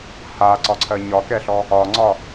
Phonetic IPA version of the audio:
haǀɒǀʰɜ ɲɒkɛɬɔ | ɒŋ͡ǀɒ

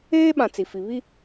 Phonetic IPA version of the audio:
eː˦ɓã˨ t͡si˨fi˨ βi˦

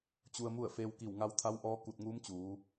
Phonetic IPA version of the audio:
t͡ɕu˧ə̯mu˥˨ə̯ feː˧wki˧˩wŋa˧wt̪ʰa˧˥w ʔɔː˧˥ ku˧˩t̚ŋuː˧˥mt͡ɕuː˩˧

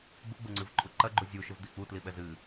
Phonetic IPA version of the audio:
ɡ͡buɡ͡buŋ͡ǀɨvǃʼu ǃɐɡ͡ǃu zʲu ʃɘvd̪i k͡putliɓɛz ɨ

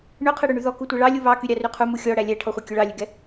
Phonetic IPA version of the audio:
ɳøqʰɛɽøɳy ðɔ kutʷɛɭɑlʲu βɑ kyɾʲɑryqʰu muxʲɔ ɽælʲæʈʰɔχʷe kʲɵɭɑlʲøɡɛ

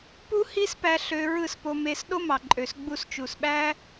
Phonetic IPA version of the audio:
pu˦hi˦s pæ˦ɬø˦ ɹɯ˦˨spo˧me˧s ɗo˦mɑ˨ǃʼø˨s ɡ͡bu˧st͡ʃu˨sɓæ˦

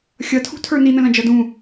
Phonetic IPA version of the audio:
xʲʌtʰṳtʰə˞ nin̪ə̃lɐ̃d͡ʒʌ dũ

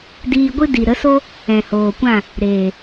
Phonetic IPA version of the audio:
diː˧ɡʷɨ˦ di˨ɾə˨˦so˦ | ɛ̃˨hoː˨kʷã˦˨ | ɾeː˨

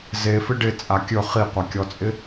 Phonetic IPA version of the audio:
zefɪ ɖɪt͡sʼa kʲɵ χiqʷakʲɔt͡sʼɪ

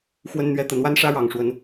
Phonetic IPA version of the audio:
xwə˦nn̪ɥɛ˦ t̪ə˨˩nwa˦nʂä˦ ɻɑ˨˩ŋʂwə˨˦n

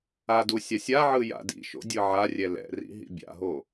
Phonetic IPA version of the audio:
adu sʲasʲaʕɯ ja̰dḭʃo̰ dʲɯʕarʲɛ lɛ̰rḭ ɦḭbʲa̰ɦo

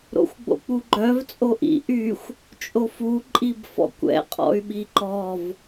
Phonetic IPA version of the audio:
ɾo̰xʷɡ͡bo̰k͡puɡ͡ǃœv t͡sʼoʔḭ ʔyxʷ | t͡ʃʼofu ǃʼibfɔ̰kʷɛ̰ qʼɔ̰y̯ɓiǃɔv

